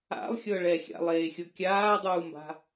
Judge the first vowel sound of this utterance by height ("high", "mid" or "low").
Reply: low